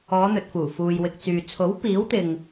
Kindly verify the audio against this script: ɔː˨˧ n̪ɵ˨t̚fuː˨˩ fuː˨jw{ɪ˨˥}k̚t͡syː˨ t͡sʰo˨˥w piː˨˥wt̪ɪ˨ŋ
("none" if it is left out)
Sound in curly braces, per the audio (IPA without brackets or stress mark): ɪ˨